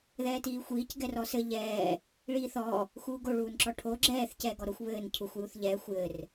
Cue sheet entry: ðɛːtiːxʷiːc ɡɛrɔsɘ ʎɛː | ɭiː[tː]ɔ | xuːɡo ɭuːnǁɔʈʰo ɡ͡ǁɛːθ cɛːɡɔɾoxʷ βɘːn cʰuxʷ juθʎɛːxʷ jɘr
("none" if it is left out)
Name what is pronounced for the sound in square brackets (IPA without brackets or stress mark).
θ